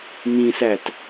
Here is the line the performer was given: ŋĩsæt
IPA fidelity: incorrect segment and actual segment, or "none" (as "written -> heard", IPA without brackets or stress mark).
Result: none